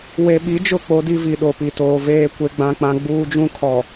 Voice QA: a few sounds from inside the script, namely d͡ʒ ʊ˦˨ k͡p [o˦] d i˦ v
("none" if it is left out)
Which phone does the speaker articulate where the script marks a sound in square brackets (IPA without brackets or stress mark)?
o˦